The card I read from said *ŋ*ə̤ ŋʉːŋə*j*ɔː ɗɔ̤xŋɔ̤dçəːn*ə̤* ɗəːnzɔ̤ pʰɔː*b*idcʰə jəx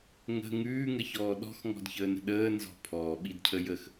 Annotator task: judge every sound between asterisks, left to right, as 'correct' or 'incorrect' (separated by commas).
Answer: correct, incorrect, correct, incorrect